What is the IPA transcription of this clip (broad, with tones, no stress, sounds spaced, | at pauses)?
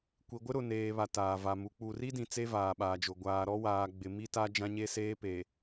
kʷ i˨ ɡʷ ɪ˦ ɾ ʊ˨ n eː˨ β a˨ t aː˨ v a˨ m u˨˦ k͡p u˨ r i˦ d ĩ˨ t͡s e˦ v aː˨ ɓ aː˨ d͡ʒ ʊ˨ ɡʷ aː˨ ɾ ɔ˦ w aː˨ ɡ͡b ɪ˨ m i˦ t a˦ d͡ʒ ã˦ ɲ e˦ s eː˦ p e˨